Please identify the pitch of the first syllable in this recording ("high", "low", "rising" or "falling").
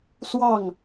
falling